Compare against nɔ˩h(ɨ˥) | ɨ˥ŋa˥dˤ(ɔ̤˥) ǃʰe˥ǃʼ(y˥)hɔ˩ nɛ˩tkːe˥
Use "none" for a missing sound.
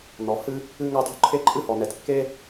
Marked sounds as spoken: ɨ˥, o̤˥, ɨ˥

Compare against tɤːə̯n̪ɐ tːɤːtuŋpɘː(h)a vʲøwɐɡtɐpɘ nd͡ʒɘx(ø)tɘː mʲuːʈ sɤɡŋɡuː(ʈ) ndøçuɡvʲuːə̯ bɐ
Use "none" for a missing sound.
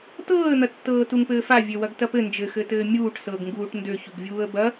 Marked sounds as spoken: f, ɘ, ʈ

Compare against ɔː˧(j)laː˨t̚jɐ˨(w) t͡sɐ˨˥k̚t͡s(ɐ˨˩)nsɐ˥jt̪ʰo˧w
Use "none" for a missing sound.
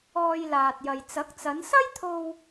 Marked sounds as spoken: j, j, ɐ˨˧

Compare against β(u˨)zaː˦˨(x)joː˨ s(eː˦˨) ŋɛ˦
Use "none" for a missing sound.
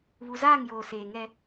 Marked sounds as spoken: u˨, ŋ, eː˨

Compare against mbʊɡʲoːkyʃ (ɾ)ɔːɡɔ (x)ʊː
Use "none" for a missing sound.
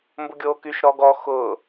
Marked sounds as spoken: ɾ, x

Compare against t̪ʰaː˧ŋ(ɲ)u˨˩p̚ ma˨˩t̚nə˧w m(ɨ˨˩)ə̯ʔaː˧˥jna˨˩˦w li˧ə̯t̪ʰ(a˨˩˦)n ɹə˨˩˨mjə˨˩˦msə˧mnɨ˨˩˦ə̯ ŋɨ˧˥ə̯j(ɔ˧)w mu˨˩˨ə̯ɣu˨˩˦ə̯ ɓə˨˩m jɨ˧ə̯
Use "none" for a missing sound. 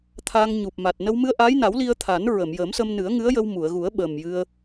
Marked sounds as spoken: ɲ, ɨ˧, a˨˩˦, ə˧

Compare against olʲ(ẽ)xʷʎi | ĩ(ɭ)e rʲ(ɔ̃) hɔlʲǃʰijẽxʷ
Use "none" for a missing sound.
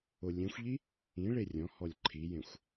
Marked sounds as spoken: ẽ, ɭ, ɔ̃

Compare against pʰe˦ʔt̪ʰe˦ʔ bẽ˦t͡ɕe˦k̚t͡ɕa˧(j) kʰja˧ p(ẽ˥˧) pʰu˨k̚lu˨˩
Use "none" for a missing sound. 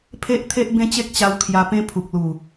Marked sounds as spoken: w, ẽ˦

